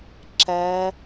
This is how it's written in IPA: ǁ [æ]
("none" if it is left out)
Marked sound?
æ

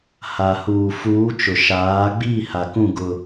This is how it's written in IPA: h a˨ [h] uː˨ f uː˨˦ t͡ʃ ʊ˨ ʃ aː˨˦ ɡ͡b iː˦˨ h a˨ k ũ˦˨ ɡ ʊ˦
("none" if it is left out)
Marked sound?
h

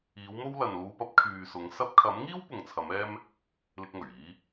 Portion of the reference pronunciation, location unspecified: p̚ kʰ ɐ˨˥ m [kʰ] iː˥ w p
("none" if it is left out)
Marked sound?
ŋ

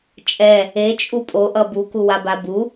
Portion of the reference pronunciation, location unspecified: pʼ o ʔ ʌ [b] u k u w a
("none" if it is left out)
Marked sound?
b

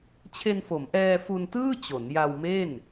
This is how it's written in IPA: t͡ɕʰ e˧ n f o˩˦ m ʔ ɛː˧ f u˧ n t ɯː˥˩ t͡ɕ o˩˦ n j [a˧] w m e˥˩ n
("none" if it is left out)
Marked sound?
a˧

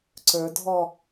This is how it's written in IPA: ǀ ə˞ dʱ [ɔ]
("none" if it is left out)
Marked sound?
ɔ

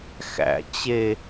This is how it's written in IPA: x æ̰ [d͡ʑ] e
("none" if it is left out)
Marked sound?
t͡ɕ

